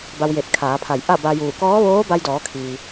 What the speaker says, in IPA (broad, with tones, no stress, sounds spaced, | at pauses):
b a˧ w j e˧˩ t̚ kʰ aː˩˧ pʰ a˧˩ j ʔ a˥˨ b a˧ j uː˧˩ k ɔː˧˥ ʋ oː˧˥ b a˧ j d ɔː˩˧ kʰ iː˩